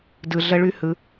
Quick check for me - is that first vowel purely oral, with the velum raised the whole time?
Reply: yes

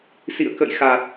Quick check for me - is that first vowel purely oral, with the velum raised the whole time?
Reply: yes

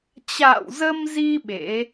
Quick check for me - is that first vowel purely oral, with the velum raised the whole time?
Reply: yes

